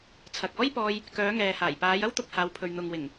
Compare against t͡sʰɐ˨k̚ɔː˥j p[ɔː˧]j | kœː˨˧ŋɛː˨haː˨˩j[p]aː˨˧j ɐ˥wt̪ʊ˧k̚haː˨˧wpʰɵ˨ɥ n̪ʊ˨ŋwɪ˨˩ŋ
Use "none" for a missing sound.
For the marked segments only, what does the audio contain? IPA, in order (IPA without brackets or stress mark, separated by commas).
ɔː˧, p